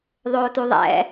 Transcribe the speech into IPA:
ðˤoːtuðˤɛ̰

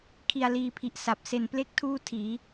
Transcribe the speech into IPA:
kʰi˧a̯liː˧pʰi˨˩ʔ sa˨˩p̚ se˨˩nple˥˩k̚ tʰuː˥˩tʰiː˩˦

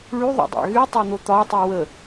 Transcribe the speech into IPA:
ɭyðˤo̰dˤa̰ ɣytˤon̪o t̪ɒtˤɯ wə

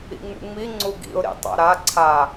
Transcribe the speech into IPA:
ḭŋ͡mṵŋ͡mi ŋ͡ǀuɡḭʊ̯ ɾḭtˤa̰ɾa ǀʰa

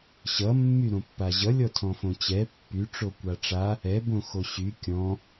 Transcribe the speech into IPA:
ɕʌmːy ɾõpːaʑʌlʲɔ tʰɔ̃fõt͡ɕɛ pːy ʈ͡ʂokʷaʈ͡ʂa | ɛbõ xoɕy kʲɔ̃

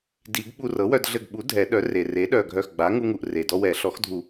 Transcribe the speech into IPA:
di˨˩˦ɡɓu˧ rɤ˩˥wœ˧d ɮɘ˧˩ɡɓu˩˥ dʱɛ˨˩˦ɗœ˩˥re˩ re˩˥ɗœ˧˩ɡʱœ˧˩xɡ͡ba˩˥ ŋu˧ŋu˩ʔ re˩dɔ˧wɛ˨˩˦ ɬɔ˩˥xdʱu˨˩˦

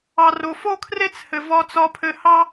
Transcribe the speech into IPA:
ɑ˩ro˩fo˥kʰre˥t͡s hɘ˩vɒ˧t͡sɒ˧pʰɘ˧ hɑ˥

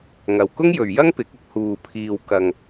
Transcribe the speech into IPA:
ŋɐ˨wkʊ˥ŋjɵ˨ɥjɐ˥ŋ pɪ˨˥k̚ʊ˨˥k̚ huː˨pʰiː˨wkɐ˨ŋ

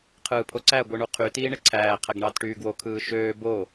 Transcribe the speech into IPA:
qʰɯːpʰoǀæ ɡʷɯɳuqʰy tiːɳeǀʰæː qʰæɡɳɑːtʈyːɡwo kʰɯːʃøː bo

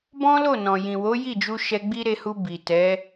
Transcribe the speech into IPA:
bɔ̃˦lo˦˨nɔ̃˨ jĩ˨wo˨˦ji˦˨d͡ʒu˧ ʃɛ˧ɡ͡bi˦ɾe˧hu˧ bi˨ tɛ˨˦

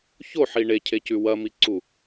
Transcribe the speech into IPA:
çoħi ɳecʰecʉ wɐmiǀu

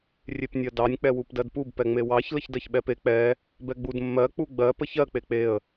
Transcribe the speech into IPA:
rʲepnʲɜdɑnʲ k͡pɛwupdɜdpub pɛŋ͡mewɑç ləçdɜçɓɛpe k͡pɛ | bɛɡ͡bud mːɜ k͡puɡ͡bɜ pəçɜ k͡pek͡peə̯

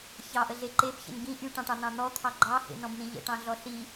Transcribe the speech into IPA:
çɑʔəɮe ǃebçə̰n ɡĩ ʔyʈɑ̃ʈɑn̪ɑ̃ n̪ɔt̪ʰɑ ɡ͡ǃɑhḛnɔ̃bn̪ĩ ʎə̰ʈɑ̃ɮɔ ɬi

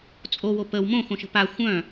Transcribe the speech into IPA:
t͡sʼowo pəw mõxõʃə̤ pa xʷœ̃

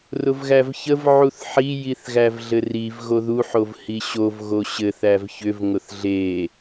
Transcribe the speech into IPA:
rʊvɣævçəv ʕuθħi jiθɣævɮɘriv ɣoðu ħovhiɕov ɣoɕɘ θævçʏv ŋʊθɮe

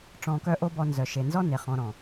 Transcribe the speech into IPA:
ʈ͡ʂɔ̃˧kœ˦ ʔo˦bɔ˧ nzœ˨ʃe˨nzɔ˦ne˨ χɔ̃˨˦ɾɔ̃˨

